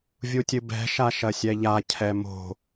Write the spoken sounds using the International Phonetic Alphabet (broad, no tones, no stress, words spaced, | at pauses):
vʲutʲɨbɛ̤ ʃaʃɐsʲɛʎa cʰɛmo̤